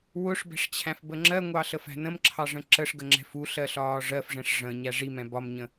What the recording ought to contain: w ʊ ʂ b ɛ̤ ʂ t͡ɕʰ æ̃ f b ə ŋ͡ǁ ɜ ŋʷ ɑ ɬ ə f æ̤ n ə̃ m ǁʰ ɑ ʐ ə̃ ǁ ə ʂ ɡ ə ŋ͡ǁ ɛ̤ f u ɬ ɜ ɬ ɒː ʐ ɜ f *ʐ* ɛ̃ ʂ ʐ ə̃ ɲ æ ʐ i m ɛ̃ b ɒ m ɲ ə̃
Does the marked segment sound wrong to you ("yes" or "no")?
no